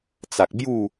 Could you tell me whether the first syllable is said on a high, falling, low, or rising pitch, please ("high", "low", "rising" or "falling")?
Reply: low